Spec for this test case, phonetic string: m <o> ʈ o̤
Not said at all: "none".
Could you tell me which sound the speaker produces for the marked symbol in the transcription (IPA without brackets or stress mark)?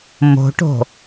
o̤